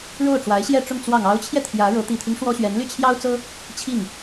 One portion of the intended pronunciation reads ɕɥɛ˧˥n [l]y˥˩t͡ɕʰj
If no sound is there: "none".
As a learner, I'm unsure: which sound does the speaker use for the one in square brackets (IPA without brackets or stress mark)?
l